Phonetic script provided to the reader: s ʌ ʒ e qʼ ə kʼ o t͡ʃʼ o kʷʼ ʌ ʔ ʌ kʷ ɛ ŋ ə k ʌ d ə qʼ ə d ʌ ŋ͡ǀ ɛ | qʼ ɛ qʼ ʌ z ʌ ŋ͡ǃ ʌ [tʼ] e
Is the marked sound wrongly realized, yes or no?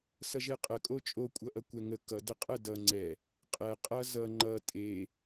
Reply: no